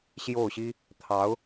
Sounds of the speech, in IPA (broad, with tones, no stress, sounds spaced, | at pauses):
ɕ j o˥˩ ʊ̯ ɕ i˥ | t̪ʰ ɑ˧˥ ʊ̯